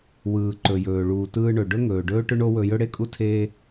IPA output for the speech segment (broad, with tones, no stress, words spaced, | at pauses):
wɯː˩ǃɵ˩jɵː˩ ɭuː˩tɯː˧ɳɵ˩ ɖɵ˥ŋɵː˩ ɖɵː˥ʈʏ˥ɳo˥wɵ˧ jɵ˥ɽe˥kʼu˥ tʰeː˧